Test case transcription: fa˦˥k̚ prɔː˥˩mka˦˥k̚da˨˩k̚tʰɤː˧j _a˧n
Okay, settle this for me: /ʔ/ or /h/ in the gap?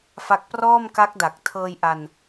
ʔ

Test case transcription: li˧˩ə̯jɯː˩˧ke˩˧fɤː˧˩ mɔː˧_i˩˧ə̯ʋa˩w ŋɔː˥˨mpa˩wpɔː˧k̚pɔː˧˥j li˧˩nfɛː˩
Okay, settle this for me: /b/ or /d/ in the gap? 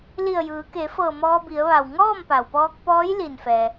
b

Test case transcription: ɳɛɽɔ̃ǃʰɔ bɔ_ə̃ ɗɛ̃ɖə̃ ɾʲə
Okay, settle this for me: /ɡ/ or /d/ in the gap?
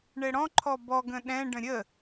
ɡ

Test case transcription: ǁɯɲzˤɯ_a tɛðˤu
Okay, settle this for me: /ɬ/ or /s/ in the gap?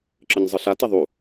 ɬ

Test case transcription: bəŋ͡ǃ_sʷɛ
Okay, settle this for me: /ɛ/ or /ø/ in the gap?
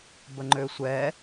ø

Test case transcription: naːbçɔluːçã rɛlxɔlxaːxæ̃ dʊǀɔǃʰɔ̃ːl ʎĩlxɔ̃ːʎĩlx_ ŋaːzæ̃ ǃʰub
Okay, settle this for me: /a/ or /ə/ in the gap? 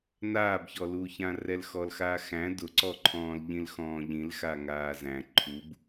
a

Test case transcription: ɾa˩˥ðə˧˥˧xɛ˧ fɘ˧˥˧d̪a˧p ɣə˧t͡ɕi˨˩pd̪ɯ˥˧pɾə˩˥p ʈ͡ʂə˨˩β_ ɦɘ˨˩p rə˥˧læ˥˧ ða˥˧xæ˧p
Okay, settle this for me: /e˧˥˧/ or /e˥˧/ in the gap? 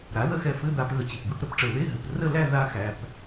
e˧˥˧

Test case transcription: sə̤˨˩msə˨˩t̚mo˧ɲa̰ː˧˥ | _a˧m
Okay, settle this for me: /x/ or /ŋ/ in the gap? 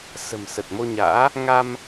ŋ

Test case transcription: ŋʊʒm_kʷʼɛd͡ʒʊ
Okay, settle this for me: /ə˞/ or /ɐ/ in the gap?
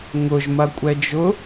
ɐ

